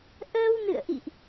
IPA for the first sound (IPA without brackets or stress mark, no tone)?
ʔ